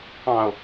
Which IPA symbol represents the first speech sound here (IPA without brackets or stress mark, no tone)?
ɑ̃